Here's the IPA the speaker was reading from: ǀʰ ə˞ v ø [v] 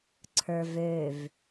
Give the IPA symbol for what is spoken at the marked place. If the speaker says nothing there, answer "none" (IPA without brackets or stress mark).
v